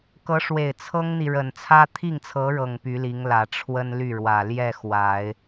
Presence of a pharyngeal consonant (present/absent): absent